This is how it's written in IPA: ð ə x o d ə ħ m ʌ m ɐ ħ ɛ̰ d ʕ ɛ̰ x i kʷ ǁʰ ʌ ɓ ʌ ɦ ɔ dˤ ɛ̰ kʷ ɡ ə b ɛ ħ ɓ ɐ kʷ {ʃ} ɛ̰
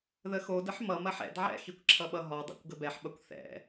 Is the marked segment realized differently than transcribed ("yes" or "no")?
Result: yes